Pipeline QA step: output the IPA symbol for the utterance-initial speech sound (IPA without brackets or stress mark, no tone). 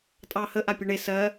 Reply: tʼ